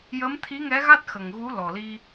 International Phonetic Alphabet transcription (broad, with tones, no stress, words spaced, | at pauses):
jəː˧˥mt̪ʰi˧˥ŋɛ˧˥ɣa˦˥t̚ xə˨˩ŋɣu˧˥ lɔ˨˩li˧